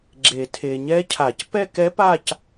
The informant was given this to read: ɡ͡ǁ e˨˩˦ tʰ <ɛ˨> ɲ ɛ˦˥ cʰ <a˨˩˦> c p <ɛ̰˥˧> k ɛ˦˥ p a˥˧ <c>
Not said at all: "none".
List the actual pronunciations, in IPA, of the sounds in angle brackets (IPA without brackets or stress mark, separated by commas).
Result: e˨, a˨˩˦, ɛ˥˧, c